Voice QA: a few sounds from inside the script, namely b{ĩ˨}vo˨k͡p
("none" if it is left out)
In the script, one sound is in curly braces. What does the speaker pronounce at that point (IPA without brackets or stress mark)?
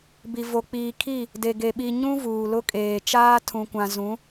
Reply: i˨